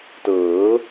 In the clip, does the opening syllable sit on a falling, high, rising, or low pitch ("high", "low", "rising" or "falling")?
rising